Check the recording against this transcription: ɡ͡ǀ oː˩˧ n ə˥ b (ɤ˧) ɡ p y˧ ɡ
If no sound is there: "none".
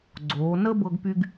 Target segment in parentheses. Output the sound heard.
ɤ˧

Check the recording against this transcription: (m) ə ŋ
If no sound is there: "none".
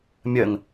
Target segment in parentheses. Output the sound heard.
mʲ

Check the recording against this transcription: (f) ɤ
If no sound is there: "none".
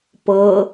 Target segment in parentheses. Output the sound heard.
p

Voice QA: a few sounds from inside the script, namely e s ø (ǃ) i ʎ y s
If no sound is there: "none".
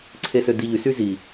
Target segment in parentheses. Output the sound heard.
d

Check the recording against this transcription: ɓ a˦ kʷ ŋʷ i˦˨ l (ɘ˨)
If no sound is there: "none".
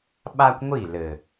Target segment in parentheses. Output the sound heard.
ɘ˨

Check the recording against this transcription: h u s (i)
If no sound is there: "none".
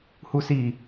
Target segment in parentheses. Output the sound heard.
i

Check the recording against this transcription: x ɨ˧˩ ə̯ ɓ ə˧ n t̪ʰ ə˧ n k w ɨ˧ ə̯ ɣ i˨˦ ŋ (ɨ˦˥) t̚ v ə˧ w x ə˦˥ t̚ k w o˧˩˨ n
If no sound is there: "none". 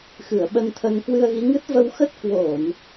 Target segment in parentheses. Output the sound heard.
ɨ˦˥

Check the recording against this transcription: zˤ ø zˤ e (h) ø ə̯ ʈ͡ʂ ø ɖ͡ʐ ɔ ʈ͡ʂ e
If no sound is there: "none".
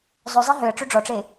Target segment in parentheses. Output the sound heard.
ɦ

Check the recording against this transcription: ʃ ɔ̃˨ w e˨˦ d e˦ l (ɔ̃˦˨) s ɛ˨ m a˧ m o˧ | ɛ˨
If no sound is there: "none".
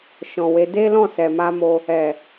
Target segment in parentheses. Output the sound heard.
ɔ̃˦˨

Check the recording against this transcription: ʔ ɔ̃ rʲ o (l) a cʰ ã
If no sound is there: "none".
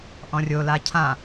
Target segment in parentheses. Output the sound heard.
l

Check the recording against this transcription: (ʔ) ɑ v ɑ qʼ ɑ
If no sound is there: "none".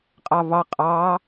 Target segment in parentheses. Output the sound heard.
qʼ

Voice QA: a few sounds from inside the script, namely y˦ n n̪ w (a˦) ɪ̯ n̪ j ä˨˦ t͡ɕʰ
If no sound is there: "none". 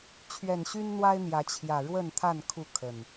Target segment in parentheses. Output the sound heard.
a˦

